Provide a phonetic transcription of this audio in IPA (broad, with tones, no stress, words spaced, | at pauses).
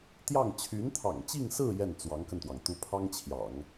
t̪jɑ˥˩ŋ t͡ɕʰy˧˥nt̪ʰɑ̰˨˩ŋt͡ɕi˥˧ŋsɹ̩˥˧ jɛ˥˩nt͡swɑ˧˥ŋkə˧nt̪wɑ˩ŋ t̪u˧˥pʰɑ˥ŋt͡ɕʰjɑ̰˨˩˦ŋ